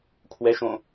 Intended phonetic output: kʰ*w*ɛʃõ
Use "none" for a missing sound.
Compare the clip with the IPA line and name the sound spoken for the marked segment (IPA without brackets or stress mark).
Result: w